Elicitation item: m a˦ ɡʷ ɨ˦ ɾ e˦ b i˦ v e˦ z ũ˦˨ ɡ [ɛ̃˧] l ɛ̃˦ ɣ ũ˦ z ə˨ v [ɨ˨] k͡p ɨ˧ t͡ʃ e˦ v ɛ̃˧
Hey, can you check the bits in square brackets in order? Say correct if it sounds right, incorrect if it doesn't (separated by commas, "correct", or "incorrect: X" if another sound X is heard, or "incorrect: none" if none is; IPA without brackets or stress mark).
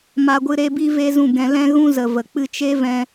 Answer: correct, incorrect: ə˨